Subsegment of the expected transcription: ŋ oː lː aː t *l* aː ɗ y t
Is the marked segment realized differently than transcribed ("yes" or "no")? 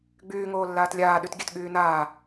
yes